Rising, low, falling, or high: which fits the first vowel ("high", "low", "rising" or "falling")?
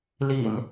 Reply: low